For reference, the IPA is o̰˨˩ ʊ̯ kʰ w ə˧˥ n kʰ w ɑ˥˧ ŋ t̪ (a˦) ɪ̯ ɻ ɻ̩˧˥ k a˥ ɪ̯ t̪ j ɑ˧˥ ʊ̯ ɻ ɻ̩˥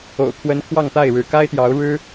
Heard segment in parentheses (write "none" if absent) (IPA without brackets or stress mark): a˥˩